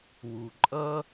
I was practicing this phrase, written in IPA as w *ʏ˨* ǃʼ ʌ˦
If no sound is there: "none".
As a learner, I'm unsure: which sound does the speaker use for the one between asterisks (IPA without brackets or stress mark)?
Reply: u˨